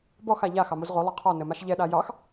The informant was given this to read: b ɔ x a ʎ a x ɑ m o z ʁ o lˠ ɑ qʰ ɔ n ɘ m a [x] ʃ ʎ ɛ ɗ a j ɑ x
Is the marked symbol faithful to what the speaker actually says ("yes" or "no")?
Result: no